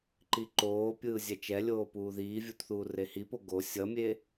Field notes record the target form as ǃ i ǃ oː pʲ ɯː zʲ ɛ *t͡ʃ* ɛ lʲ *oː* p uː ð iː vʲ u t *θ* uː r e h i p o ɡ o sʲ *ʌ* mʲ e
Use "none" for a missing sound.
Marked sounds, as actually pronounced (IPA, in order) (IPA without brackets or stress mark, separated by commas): t͡ʃ, oː, θ, ʌ